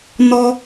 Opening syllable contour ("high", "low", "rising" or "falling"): high